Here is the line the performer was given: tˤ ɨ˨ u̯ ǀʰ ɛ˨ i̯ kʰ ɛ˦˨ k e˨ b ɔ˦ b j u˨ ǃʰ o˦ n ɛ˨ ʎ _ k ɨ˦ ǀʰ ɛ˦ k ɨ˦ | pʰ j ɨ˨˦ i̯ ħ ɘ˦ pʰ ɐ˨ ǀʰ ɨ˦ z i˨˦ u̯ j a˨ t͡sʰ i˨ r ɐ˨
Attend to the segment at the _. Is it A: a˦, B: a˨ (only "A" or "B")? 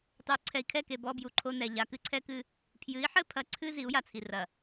B